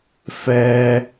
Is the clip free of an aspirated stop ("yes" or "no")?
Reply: yes